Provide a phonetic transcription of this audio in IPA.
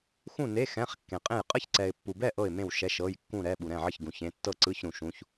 x ũ˥˨ n e˧˥˧ x ɛ̃˧˥˧ χ kː ẽ˨ qʼ ẽ˥˨ j qʼ ə˥˨ ç ǀ ɛ˨ ɪ̯ pː u˨ b ɛ˥˨ ʔ ɤ˥˨ ɪ̯ m ẽ˥˨ w ʃ ɛ˧˥˧ ʃ ɤ˧˥˧ j kː ũ˥˨ ɾ ɛ˧˥˧ ɓ u˨ ɾ ɛ̃˥˨ ʕ ə˥˨ ç ɡ ũ˨ ç ẽ˧˥˧ tː ɤ˥˨ ǀ ɯ˧˥˧ ç ɾ ũ˨ ʃ ũ˧˥˧ ç

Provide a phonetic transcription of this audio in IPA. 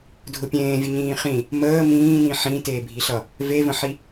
dʱ ʊ pʲ ẽː vʲ ə ɲ ĩː χ ĩ | m əː m ĩː n ĩ ħ ĩ t eː bʱ i ɬ ʌ | v e v ə̃ ħ i

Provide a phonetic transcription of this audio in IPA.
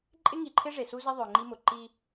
ǃʼ ɪ˦ ŋ i˨ ǃʰ ɪ˦ ʐ e˨ s u˦ z ɪ˦ ðˤ ɵ˨ ŋ͡ǃ i˦ m ʊ˨ ǃ i˦

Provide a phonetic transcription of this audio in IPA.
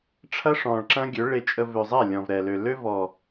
ʈ͡ʂʰ ɐ˦ ʂ ɔ̃˨ ɭ ǁ ɐ̃˦ ɡʲ ø˨˦ ɭ e˨ t͡ʃʼ ə˨ v ø˨ zˤ ɛ˦˨ lʲ ɔ̃˨ v ɾ ɛ˨ l ø˨ l ø˦ v ɔ˨

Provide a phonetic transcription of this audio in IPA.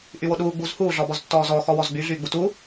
ʔ y w o ɗ uː ɡ͡b u z h uː ɮ ɔ b ɔ z tː ɔː z ɔ x ɔ w ɔ z ɡ͡b y ɮ yː ɡ͡b u t u

